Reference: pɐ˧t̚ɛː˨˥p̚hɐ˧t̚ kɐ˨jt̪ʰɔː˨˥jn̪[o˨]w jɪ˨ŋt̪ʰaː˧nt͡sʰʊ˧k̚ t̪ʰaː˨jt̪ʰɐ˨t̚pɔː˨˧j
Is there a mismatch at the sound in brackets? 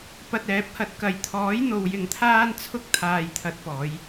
no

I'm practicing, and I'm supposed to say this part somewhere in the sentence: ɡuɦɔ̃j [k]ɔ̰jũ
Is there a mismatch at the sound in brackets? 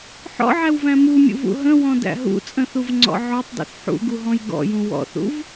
yes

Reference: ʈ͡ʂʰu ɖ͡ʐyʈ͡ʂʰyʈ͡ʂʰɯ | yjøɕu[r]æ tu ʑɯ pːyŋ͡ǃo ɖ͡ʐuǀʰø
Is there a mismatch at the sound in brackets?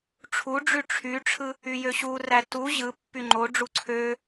no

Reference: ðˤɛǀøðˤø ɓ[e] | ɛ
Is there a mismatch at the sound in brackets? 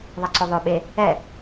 no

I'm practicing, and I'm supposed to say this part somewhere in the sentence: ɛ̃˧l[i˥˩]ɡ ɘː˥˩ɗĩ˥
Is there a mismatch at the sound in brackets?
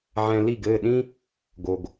no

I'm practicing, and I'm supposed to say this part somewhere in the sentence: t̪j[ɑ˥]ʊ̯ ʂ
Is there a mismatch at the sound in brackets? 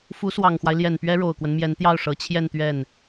yes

